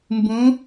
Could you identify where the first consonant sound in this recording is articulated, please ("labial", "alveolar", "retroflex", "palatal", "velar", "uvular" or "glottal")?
labial